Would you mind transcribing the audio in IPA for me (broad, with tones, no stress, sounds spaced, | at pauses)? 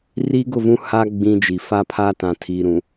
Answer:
r i˦ ɡ ʊ˦˨ v ũ˦ h aː˦ ɡ͡b ĩ˦ d͡ʒ i˨ f a˦ pʰ a˦ t ã˨ tʰ iː˨ ɾ ũ˨